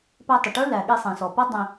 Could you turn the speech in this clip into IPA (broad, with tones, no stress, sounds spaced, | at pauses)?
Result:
p æ˧ tˤ ə˩ ʈ ə˞˥ l æ˩ ɠ i˧ sˤ ĩ˩ s ɔ˩ p ʌ˥ dˤ ĩ˧